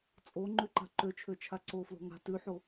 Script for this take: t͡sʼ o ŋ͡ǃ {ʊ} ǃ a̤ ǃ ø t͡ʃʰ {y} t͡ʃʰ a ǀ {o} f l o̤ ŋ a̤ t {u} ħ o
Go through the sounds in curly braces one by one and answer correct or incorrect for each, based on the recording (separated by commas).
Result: incorrect, incorrect, correct, incorrect